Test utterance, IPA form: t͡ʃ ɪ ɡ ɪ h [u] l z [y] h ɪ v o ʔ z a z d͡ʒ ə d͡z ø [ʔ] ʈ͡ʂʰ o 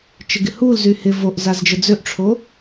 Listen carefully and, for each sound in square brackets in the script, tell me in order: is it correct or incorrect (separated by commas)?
correct, correct, correct